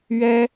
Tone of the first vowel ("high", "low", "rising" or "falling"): high